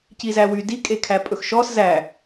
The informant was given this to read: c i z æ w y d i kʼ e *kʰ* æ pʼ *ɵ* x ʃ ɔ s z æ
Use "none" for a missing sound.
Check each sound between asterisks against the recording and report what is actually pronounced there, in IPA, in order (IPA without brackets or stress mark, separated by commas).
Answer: kʰ, ɵ